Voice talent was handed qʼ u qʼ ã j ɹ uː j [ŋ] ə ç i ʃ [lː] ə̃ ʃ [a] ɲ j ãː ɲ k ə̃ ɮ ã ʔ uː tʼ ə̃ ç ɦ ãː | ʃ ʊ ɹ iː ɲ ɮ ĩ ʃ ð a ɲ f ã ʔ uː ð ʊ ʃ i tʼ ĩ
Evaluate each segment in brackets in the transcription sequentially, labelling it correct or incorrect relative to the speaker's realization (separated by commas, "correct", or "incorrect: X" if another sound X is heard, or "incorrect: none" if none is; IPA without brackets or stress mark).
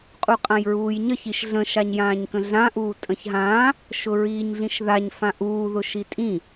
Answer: incorrect: ɲ, incorrect: ɮ, correct